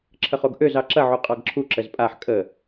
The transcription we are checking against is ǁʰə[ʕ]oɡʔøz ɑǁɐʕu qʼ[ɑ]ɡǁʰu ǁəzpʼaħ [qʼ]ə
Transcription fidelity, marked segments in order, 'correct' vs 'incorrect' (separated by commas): incorrect, correct, incorrect